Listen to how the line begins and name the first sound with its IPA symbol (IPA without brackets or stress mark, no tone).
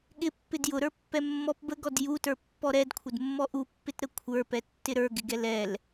ɠ